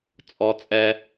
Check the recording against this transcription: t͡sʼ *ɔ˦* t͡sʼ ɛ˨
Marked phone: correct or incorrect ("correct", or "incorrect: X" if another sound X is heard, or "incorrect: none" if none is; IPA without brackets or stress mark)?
incorrect: ɔ˨